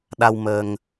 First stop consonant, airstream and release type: implosive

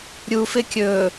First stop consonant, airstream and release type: plain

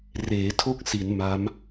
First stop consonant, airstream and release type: aspirated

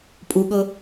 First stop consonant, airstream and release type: ejective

